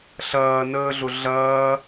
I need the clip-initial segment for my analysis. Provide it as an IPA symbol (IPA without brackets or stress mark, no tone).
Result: ɬ